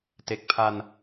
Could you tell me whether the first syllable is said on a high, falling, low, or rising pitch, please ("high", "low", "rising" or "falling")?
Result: low